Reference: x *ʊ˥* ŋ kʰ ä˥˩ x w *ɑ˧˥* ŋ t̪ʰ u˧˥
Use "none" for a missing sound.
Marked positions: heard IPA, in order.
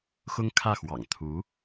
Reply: ʊ˥, ɑ̰˨˩

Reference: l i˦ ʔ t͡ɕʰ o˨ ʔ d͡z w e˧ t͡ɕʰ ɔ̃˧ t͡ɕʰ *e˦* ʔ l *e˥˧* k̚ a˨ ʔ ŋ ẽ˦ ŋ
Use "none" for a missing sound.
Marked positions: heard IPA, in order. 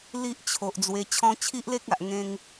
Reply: i˦, e˦

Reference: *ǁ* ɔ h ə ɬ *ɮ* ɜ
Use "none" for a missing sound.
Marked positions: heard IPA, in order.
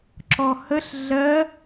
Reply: ǁ, ɮ

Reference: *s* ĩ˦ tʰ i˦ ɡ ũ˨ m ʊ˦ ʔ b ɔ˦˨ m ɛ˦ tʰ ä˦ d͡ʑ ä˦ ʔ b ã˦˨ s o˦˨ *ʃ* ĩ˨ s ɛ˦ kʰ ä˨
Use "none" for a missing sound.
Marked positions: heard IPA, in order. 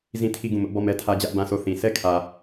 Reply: z, θ

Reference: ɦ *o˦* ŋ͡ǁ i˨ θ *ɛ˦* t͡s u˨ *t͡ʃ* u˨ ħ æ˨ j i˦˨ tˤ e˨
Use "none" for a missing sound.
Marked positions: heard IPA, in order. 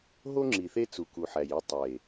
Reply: o˦, e˦, k

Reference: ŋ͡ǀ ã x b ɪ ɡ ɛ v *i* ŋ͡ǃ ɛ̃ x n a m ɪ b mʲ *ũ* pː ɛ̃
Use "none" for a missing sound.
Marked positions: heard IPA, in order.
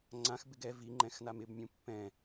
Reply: i, ũ

